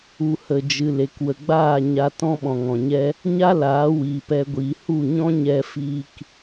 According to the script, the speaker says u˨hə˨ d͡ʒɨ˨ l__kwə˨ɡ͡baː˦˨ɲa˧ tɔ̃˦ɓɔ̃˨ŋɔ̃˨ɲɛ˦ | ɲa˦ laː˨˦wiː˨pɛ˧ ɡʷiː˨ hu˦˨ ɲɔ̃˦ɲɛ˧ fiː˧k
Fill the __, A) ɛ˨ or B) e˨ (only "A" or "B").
B